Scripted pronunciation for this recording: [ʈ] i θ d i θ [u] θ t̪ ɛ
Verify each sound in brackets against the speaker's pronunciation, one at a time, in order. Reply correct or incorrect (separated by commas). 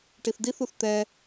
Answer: correct, correct